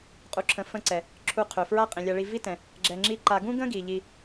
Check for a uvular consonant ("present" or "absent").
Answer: present